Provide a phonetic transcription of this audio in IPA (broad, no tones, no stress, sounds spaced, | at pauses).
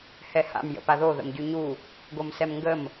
h ɛ h a̰ m j ə̰ p a ð o ð ə̰ m ɟ y ɲ u | ɡ o m s ɛ m ŋ ɡ ə m